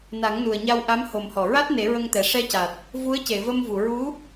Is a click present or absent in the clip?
absent